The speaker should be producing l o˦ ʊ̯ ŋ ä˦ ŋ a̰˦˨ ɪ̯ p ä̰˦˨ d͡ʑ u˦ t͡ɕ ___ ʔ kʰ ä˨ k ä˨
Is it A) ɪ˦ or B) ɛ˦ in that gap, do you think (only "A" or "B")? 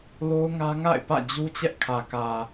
B